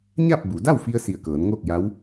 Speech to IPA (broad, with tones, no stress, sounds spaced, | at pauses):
ɲ a˥˨ p̚ b u˩˧ d a˥˨ w f i˧ ə̯ s i˧˩ ə̯ k ɤː˩˧ n ŋ oː˥˨ k̚ j a˧˥ w